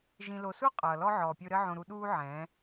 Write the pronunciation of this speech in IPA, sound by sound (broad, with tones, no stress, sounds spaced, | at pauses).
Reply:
ʒ ĩ˨ l o˨ s u˦ qʼ ʌː˨ l ɔ˦ ʕ ɔː˨ pʲ ɯ˧ ɾ ɘ˧ ʕ õ˨ ɾ u˨ ɗ uː˧ ʕ ɛ̃ː˨˦